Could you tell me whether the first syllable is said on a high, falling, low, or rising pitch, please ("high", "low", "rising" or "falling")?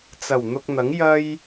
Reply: low